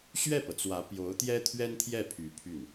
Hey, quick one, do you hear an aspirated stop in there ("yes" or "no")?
yes